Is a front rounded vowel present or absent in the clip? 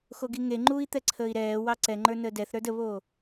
absent